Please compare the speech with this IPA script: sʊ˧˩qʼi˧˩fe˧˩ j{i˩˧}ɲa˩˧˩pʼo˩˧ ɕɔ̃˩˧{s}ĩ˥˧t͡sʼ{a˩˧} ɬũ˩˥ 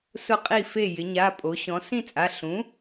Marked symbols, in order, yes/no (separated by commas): no, yes, no